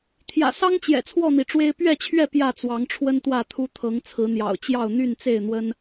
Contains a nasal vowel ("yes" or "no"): no